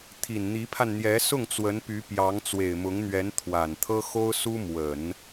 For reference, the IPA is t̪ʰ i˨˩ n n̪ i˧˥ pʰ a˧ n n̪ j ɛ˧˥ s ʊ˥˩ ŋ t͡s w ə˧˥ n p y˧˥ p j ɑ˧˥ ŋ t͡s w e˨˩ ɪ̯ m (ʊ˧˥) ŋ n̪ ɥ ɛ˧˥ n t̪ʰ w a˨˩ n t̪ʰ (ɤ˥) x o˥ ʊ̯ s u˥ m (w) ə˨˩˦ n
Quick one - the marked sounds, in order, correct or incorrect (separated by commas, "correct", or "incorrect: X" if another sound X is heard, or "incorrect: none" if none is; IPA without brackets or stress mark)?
correct, correct, correct